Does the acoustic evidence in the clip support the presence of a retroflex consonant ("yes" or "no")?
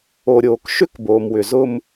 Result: no